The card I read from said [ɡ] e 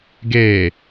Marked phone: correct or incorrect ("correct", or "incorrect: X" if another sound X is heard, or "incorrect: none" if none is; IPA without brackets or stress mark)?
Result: correct